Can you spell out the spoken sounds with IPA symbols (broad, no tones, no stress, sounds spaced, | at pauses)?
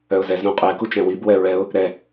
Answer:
œ ʊ̯ z ɛ z ɾ ũ qʼ ɛ k u t͡ʃ ɛ̃ w i b w ɛ ɹ ɛ ʊ̯ | ɾ ɛ